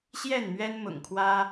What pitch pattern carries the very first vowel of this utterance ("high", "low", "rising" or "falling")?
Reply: falling